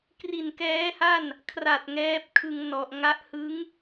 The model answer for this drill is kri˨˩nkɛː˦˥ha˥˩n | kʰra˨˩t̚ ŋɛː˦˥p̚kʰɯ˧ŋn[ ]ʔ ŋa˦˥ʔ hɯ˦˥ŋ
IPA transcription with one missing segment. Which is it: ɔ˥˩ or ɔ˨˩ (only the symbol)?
ɔ˨˩